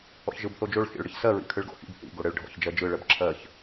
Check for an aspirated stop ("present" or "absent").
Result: present